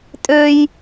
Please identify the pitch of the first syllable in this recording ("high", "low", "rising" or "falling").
high